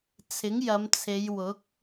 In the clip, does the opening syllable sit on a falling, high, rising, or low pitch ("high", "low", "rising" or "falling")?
rising